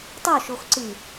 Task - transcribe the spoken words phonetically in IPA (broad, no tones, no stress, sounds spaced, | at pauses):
tˤ o ʃ o x ǀ ɨ